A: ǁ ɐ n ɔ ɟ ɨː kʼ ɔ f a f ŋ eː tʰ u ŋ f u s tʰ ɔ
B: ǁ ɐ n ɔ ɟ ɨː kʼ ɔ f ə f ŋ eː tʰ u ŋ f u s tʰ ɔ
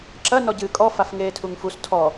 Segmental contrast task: A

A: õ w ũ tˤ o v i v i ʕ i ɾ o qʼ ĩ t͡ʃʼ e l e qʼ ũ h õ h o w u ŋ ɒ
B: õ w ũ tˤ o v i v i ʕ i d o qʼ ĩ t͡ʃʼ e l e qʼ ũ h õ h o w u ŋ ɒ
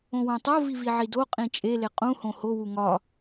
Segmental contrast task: B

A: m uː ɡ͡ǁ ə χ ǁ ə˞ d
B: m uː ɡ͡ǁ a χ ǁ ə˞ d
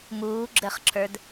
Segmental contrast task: A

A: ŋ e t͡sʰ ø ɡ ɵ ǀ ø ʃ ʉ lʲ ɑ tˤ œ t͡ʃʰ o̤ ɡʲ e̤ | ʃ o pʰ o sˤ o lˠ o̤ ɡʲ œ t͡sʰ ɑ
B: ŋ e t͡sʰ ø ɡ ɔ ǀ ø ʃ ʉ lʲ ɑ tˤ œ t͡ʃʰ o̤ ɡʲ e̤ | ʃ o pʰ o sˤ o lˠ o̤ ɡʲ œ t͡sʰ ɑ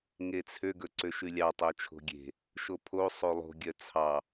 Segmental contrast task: A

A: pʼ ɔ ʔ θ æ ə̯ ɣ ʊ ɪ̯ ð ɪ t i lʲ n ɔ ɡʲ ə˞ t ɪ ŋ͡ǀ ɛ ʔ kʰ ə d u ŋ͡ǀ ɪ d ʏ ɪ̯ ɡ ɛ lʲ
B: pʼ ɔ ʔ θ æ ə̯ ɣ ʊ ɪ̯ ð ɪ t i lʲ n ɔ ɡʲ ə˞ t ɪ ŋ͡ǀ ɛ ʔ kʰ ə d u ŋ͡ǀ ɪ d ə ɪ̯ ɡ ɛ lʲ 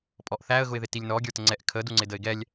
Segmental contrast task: B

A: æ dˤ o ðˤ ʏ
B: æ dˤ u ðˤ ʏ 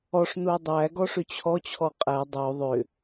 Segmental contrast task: A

